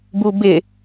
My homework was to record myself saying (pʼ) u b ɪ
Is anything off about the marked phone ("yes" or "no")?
yes